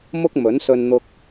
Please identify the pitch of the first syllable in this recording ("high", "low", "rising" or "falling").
high